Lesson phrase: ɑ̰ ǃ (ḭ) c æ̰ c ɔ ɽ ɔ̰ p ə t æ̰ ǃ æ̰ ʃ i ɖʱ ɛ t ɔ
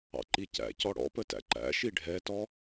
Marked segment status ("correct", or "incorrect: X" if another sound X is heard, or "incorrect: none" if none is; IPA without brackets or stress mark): incorrect: i